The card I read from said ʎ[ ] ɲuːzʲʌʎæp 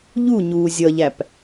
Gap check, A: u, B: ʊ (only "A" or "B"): A